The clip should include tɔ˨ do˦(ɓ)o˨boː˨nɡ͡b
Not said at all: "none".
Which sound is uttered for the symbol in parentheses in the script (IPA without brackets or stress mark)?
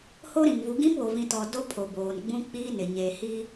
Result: pʰ